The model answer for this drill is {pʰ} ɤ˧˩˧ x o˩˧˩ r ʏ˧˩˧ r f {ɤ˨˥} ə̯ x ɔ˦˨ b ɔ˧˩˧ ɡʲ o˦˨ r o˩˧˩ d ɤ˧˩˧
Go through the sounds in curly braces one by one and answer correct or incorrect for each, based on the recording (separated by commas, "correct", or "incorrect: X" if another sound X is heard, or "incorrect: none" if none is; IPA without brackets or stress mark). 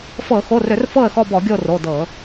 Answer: incorrect: f, incorrect: ɤ˦˨